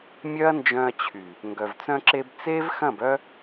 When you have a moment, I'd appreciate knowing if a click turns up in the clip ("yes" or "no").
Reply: yes